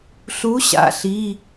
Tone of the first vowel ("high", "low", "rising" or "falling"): rising